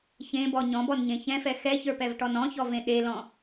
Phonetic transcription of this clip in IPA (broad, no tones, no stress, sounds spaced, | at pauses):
ç ẽ b ɔ ɲ ɔ̃ b ɔ n ɲ ẽ ç ɛ̃ f ɛ x ɛ ç ə˞ p ɛ v ʈ ɔ n ɔ̃ ç ɔ v ẽ ɗ e l ɔ̃